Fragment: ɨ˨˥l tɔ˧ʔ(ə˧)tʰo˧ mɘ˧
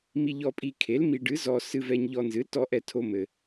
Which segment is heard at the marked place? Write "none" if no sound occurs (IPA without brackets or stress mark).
ɛ˧